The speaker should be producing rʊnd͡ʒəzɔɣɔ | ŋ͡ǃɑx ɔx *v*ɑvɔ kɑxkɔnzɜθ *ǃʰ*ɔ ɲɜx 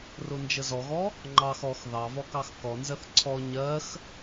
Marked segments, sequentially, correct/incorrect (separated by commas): incorrect, incorrect